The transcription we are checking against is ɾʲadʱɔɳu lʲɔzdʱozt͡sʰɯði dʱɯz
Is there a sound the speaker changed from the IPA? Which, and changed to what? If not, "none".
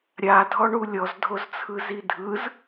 ð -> z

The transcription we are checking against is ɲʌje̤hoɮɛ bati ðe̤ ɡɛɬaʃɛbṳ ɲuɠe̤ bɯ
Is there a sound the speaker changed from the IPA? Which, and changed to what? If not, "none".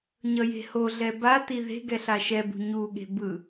none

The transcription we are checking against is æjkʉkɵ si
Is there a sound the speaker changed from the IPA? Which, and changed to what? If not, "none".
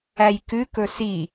none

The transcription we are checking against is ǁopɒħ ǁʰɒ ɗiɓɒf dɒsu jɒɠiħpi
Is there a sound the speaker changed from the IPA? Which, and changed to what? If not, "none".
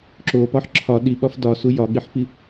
none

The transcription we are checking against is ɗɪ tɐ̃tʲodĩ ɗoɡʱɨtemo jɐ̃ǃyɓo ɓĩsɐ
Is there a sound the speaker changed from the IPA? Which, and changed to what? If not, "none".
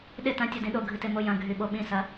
ǃ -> ɡʱ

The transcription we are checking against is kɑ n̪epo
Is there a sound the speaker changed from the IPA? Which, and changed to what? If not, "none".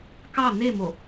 p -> m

